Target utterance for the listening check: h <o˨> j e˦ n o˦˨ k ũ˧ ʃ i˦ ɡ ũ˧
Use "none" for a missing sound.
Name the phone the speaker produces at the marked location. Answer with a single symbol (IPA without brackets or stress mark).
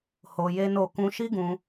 o˧